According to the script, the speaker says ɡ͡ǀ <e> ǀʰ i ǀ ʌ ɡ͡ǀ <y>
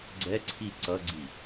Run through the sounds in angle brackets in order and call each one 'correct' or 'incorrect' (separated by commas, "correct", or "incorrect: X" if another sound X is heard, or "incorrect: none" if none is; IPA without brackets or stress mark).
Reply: incorrect: ɛ, incorrect: i